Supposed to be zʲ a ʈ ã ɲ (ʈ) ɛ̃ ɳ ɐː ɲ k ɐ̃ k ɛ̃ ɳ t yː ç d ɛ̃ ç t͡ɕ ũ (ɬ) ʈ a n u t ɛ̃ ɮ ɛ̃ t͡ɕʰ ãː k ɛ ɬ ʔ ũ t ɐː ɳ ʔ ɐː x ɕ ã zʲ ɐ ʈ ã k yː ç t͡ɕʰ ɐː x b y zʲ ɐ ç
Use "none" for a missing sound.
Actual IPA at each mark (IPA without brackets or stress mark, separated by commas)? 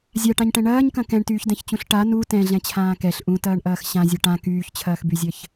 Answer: ʈ, ɬ